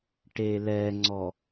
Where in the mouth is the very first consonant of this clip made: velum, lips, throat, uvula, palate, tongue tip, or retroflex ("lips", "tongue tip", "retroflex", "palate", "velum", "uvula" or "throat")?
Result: retroflex